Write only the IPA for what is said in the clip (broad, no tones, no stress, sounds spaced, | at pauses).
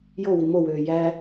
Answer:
j o w i m o w øː j æ